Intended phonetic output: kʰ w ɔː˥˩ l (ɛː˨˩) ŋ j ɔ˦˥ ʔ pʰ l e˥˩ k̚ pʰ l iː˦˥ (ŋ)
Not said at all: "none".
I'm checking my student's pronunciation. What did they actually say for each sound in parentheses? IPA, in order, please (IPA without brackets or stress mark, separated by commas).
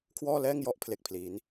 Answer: ɛː˥˩, n